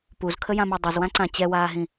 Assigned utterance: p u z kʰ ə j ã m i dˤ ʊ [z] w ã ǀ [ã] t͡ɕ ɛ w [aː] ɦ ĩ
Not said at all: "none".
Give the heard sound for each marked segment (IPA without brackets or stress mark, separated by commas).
z, ã, aː